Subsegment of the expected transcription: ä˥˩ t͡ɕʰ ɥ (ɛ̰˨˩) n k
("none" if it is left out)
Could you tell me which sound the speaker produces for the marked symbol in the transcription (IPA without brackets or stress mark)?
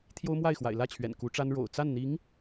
ɛ̰˨˩